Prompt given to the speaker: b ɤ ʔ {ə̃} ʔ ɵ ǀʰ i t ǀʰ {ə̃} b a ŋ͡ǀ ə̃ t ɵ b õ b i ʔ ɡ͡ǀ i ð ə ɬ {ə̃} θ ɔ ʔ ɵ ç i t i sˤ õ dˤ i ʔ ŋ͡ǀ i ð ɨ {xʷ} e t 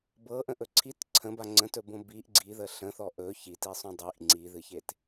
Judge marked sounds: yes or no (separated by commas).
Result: yes, yes, yes, no